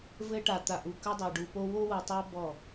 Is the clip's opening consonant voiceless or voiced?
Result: voiced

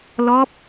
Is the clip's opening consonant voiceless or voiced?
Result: voiced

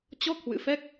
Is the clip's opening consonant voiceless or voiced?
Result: voiceless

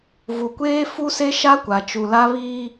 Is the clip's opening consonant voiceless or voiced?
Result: voiced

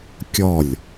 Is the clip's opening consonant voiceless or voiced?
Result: voiceless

